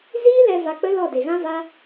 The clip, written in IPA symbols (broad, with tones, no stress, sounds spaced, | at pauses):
z iː˦ l ɛ˧ v a˧ k͡p ə˦ l ɔ˦˨ d e˨ ɣ ã˦ v a˦